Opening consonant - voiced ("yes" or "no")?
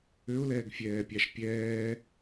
yes